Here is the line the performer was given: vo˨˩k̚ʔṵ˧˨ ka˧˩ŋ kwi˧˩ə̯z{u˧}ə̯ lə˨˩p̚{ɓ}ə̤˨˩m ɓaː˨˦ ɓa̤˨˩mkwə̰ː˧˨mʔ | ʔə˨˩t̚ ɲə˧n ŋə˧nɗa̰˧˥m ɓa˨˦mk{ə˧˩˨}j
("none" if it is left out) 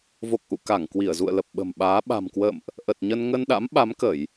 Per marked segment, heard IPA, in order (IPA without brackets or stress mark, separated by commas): ṵ˧˨, ɓ, ə˧˩˨